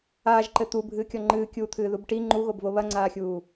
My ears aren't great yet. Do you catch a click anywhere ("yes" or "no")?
yes